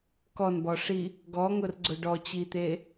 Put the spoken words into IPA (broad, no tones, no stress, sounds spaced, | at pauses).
k ɔ n b ɔ ʂ i | ɡ ɔ ŋ ʊ r ɡ͡ǀ ʊ ɖ ɔ t͡ɕ i t̪ e